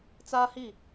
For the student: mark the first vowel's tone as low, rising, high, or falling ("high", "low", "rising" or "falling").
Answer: high